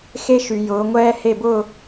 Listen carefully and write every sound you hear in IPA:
x e˦ ʃ y˨ j ʊː˨˦ ŋʷ ɛː˦ h e˦˨ b ʊː˦˨

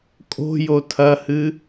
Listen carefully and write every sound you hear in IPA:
kʼ o̤ j o tʰ ɐ h ɨ

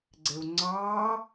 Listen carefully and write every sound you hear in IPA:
ɡ͡ǀ e u̯ ŋ͡ǀ ɑː

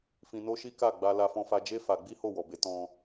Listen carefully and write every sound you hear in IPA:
f ĩ˧ n o˦ ʃ i˦ k a˦˨ ɡ͡b a˧ l a˧ f ɔ̃˧ f a˧ d͡ʒ e˦ f a˧ ɡ͡b i˦ h o˦˨ w ɔ˨ b e˨˦ t ɔ̃˧

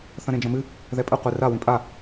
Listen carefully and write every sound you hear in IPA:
θ ɐ̃ ɾ ẽ d͡ʒ ɐ̃ m ɨ | ð ɛ pʼ ɘ qʷ ɨ r a w ĩ pʼ a

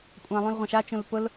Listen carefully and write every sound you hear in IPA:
kʷʼ ã lˠ ũ l ʁʷ ɐ̃ ʃ a t͡ʃ ũ l p ʊ l

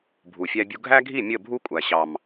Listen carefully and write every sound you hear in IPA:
bʱ u˨ fʲ æ˦ bʲ u˦ ɡʱ æ˦ ɡʱ i˦˨ mʲ ə˦˨ bʱ u˦ kʷʼ æ˨ ɕ ɑ˨ m

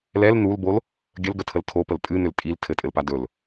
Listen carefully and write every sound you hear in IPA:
l ɛ l n u l b o l | ɡʲ ə l ɡ ə tʰ ə l tʰ o p ə l tʼ ɨ n ʏ l tʼ i l tʰ ɘ tʼ ɘ l p a d ɵ l

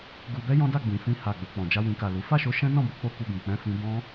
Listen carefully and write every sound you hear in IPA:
ɡ u˧ b ɛ˦ j ɔ̃˦ d a˦˨ ɡ͡b ĩ˨ f ĩ˧ h a˨ ɡ͡b o˨ k͡p ɔ̃˨ d͡ʒ a˧ w ĩ˨ k a˨ l u˨˦ f a˦˨ ʃ o˨˦ ʃ ɛ̃˦ n ɔ̃˦˨ b o˨˦ k͡p o˦ k u˧ ɡ ũ˨ k͡p ɛ̃˧ f ĩ˧ b ɔ̃˦

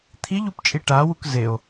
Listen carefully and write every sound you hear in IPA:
t̪ʰ i ʎ u p t͡ʃʼ i ʈ a w u k z e o̯

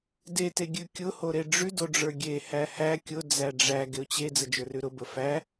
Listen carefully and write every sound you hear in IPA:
d e t e ɡʲ ʉ kʲ ʊ h o ɾ e ɖ͡ʐ ʉ d o ɖ͡ʐ ə˞ ɡʲ e h æ h æ kʲ ʊ d͡z æ ɖ͡ʐ æ ɡ e ʊ̯ t͡ɕ e d͡z ə d͡ʒ ə˞ r ʉ ɾ ʊ b ə f æ

